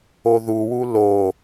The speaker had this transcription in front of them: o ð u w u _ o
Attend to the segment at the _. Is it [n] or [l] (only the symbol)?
l